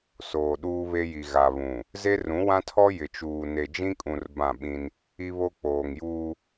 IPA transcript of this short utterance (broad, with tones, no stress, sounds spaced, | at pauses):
s oː˨ ɗ uː˦ β e˦ j i˨ ɣ a˨ β ũ˨ | z e˦ r ũ˨˦ w ã˦ tʰ ɔ˦ j ɪ˨ t͡ʃ uː˨ n e˨ d͡ʒ ĩ˦ kʼ ũ˨ r b ã˦˨ ɓ ĩ˦ n | i˦ β o˦ k͡p oː˨ ŋ j uː˦